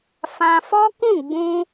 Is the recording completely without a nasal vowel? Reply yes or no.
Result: no